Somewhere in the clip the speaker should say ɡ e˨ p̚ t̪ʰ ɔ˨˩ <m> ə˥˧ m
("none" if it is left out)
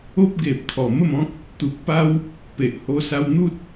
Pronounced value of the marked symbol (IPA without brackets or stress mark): m